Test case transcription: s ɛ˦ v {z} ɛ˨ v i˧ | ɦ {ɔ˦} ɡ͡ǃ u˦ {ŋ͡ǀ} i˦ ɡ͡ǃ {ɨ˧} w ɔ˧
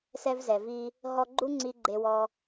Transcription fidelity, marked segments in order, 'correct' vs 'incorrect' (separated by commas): correct, incorrect, correct, incorrect